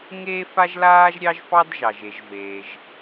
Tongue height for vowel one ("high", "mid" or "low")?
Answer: mid